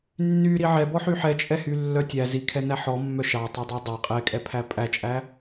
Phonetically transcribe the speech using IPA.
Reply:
nː y ɾ i ʕ ɛ b ɔ ħ y ħ ɛ t͡ʃʼ ɛ h y lː œ tʲ æ z i kʰ ɛ n æ ħ ɔ mː œ ʃ ɑ tˤ o dˤ ɑ dˤ æ qʼ ɛ kʼ ɛ pʰ æ pʼ æ t͡ʃʼ æ

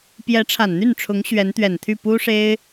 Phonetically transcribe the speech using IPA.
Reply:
p j ɛ˧˥ ʈ͡ʂʰ a˨˩ n n̪ y˥˩ n ʈ͡ʂʰ ʊ˧˥ ŋ ɕ ɥ ɛ˧˥ n t̪ ɥ ɛ˨˩ n t̪ʰ y˥˩ p u˥ ʂ e˥ ɪ̯

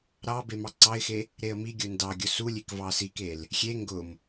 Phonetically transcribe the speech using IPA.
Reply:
ɾ ɑ b e m ɑ ǀ ɑ ɪ̯ x e | ɾ e ə̯ m i ɡʲ ʊ n d ɑ ɡʲ ʊ s u lʲ e k v ɑ s i k e l | xʲ e ŋ ɡ ʊ m

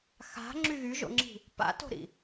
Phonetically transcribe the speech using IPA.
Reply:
x a̤ ŋ͡ǁ y ɣ y ʒ o̰ ŋ͡ǁ i̤ | p a̰ t o̤ ɾ ḭ

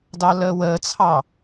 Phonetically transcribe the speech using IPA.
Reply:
d ɑ l əː w əː t͡sʰ ɑ

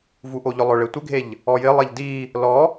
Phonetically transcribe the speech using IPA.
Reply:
v u ʔ o ʎ ʊ lˠ ʊ ɭ e tʷ ɪ ɡʱ e ʎ | ɔ j ɪ lˠ e ʎ d i | l ɔ

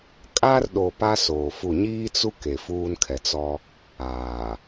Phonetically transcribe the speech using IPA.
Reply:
kʼ a˦ r ɗ o˨ p a˦ s oː˨ f u˦˨ ɲ iː˦ t͡s u˦ k e˨ f uː˦ n kʰ ɛ˨ t͡s ɔ˦ | aː˨

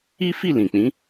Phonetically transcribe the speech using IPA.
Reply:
i˦ f i˦˨ l ĩ˨ k͡p ĩ˨˦

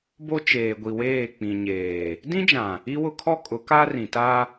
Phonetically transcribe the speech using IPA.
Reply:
b o˦ t͡ʃ eː˨ ɡʷ i˨ w eː˦˨ k͡p ĩ˨ ɲ eː˨ | d ĩ˦ d͡ʒ ã˨ | i˦ w ʊ˦ kʰ ɔ˦ kʼ ʊ˨˦ k a˦ r ĩ˨ t a˦

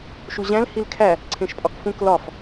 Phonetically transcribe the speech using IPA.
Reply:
ʃ u ʑ æ̃ l h i l kʰ æ | ǀʰ ẽ ʃ pʼ ɒ k f ũ k l ɒ f

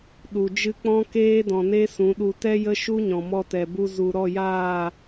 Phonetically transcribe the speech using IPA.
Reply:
ɗ u˨ d͡ʒ ɨ˦ k͡p ɔ̃˦ k eː˦ d ɔ̃˨ n e˦ s ũ˨˦ ɗ u˧ t ɛ˦ j ə˦ ʃ u˦ ɲ ɔ̃˨ m ɔ˧ t ɛ˨ b u˧ z u˨ ɾ ɔ˦˨ j aː˦˨

